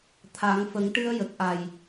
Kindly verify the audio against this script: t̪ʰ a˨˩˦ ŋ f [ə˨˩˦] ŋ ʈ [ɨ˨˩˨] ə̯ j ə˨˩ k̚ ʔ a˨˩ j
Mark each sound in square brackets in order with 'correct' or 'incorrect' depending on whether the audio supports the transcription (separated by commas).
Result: correct, incorrect